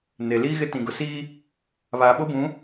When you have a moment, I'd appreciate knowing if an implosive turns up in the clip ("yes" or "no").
yes